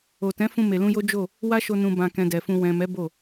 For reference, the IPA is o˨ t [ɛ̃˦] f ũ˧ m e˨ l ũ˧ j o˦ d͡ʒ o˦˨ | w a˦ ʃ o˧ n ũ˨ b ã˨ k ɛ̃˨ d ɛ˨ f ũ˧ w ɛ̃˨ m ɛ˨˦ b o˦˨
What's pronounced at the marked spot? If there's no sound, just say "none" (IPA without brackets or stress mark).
ɛ̃˨˦